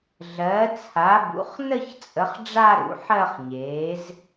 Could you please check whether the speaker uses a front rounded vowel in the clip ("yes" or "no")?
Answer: no